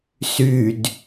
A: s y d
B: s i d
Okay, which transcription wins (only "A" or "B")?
A